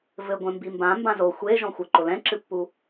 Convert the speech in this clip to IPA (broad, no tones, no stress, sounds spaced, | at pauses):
v ɘ ɡʷ ɛ̃ m b i m b ã m b ã z o xʷ e ʒ ɔ̃ xʷ ɐ ǃ o l ɛ̃ ǁ ɨ pː u